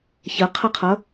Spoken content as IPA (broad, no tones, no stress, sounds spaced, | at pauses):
ç ə qʰ ʌ qʰ ʌ